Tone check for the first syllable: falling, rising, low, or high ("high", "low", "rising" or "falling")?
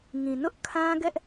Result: low